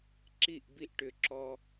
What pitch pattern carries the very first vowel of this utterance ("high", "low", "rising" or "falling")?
falling